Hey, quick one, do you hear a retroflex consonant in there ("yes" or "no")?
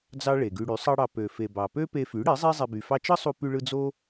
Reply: yes